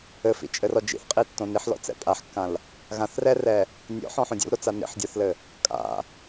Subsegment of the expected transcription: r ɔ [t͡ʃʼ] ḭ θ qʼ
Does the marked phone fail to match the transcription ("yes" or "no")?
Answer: yes